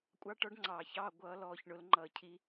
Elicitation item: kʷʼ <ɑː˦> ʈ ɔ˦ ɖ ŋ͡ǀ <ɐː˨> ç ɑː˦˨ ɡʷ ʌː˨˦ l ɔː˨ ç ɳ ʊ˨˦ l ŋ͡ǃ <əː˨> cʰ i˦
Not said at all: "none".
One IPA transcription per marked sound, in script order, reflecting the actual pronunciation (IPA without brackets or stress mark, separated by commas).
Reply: ɑ˦, ɑː˨, ʌː˨